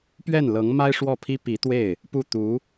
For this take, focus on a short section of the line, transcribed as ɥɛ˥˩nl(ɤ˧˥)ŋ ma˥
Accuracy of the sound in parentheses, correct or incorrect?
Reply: correct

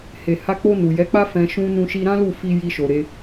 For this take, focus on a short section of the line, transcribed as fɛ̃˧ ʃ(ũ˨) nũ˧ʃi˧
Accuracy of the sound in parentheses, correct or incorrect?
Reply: incorrect: ũ˧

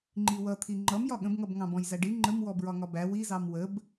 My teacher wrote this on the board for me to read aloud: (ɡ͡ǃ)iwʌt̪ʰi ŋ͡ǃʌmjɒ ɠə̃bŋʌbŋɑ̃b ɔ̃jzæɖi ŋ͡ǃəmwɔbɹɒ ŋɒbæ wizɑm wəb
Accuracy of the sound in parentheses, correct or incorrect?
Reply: incorrect: ŋ͡ǃ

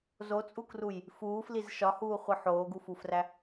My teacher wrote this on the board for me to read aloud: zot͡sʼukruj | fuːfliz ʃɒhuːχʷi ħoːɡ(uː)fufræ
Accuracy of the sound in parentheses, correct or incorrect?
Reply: incorrect: u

